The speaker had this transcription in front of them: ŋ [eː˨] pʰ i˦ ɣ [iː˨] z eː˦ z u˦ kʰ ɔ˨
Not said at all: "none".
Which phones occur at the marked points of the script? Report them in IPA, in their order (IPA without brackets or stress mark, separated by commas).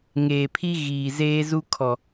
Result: eː˨, iː˨